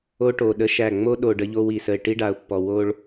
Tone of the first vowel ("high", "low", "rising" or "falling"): high